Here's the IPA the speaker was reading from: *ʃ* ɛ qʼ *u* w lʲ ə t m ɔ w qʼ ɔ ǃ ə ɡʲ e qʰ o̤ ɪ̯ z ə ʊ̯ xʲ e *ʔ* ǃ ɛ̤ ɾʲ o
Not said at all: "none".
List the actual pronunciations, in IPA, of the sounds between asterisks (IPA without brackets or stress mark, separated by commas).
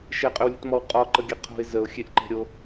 ʃ, ʏ, ʔ